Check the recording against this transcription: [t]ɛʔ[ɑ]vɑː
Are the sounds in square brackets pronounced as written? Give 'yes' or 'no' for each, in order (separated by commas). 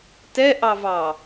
yes, yes